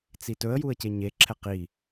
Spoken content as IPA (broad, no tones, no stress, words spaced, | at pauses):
t͡sitɵə̯juə̯ ceɲeǁʰɛ qi